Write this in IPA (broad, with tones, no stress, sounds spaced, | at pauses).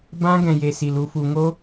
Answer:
b ã˦ ɡ ɛ̃˧ j e˨ s i˨ l u˧ f u˨ ŋ o˦